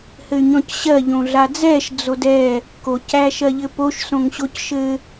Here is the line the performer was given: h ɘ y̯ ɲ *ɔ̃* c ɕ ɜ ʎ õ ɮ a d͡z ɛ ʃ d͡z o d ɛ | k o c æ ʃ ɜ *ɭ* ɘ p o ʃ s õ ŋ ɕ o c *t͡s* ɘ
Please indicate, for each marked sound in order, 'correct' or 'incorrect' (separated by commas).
correct, incorrect, incorrect